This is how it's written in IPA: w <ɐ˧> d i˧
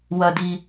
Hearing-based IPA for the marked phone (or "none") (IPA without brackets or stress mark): ɐ˧